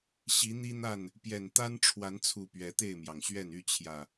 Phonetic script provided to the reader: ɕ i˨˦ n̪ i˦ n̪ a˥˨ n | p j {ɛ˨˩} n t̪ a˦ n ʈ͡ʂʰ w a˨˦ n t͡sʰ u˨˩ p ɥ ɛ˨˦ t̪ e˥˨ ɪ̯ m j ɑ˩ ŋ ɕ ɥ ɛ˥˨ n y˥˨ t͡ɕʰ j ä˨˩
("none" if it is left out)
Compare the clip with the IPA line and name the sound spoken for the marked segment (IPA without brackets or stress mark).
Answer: ɛ˨˩